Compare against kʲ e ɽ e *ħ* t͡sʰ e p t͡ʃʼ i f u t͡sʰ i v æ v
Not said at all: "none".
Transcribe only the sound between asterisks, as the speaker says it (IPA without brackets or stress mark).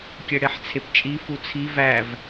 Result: ħ